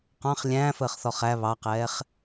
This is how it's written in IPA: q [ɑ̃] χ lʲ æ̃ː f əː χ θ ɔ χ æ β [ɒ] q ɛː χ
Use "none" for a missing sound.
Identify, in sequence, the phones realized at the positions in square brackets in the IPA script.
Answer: ɑ̃, ɑ

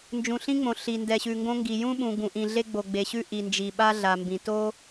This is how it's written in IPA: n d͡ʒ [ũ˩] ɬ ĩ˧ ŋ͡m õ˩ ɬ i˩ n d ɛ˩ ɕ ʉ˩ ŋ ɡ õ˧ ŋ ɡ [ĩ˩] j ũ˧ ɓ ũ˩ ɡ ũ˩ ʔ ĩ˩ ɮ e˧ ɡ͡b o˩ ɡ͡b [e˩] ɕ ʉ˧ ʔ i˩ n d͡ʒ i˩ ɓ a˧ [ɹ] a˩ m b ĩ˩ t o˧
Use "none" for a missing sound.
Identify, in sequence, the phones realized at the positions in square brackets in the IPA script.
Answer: ũ˩, i˩, e˩, ɮ

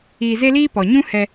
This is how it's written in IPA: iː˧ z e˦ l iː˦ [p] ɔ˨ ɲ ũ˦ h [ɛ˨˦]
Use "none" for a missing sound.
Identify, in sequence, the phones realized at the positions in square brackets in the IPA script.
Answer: p, ɛ˧

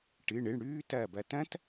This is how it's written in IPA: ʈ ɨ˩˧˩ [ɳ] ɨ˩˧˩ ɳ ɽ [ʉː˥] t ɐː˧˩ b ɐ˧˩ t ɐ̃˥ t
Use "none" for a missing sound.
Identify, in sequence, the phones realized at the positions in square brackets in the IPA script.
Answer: ɳ, ʉː˥

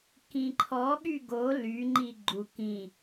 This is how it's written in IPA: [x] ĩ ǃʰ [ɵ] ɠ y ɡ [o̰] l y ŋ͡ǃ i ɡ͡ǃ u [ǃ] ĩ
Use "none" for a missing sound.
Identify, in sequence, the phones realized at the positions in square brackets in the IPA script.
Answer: k, ɔ, o, k

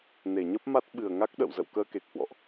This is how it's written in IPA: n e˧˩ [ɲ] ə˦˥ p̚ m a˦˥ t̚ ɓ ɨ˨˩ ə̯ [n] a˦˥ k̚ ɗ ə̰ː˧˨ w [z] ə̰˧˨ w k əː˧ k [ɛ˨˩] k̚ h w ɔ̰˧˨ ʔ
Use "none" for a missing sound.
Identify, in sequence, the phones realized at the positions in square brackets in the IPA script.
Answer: ɲ, ŋ, z, e˨˩

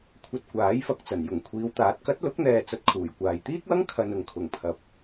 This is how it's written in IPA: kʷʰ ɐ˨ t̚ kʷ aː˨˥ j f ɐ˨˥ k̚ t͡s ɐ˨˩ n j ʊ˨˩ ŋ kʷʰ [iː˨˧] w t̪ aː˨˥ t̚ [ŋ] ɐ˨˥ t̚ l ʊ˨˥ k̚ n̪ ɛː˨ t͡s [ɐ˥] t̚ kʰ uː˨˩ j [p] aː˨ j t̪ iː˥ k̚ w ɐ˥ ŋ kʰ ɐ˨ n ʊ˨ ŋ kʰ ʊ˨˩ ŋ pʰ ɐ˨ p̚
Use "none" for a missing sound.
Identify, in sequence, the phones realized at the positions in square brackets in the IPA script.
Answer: iː˨˧, k, ɐ˧, kʷ

